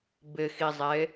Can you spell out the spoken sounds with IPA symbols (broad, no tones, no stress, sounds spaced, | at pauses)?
b ɪ x i zˤ e